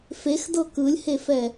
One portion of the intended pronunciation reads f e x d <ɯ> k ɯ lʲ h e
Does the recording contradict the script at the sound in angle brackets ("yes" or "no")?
yes